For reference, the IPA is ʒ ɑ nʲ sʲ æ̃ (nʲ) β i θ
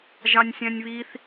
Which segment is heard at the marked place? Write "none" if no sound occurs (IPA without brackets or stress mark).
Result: nʲ